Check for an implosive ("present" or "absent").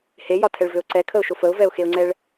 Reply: absent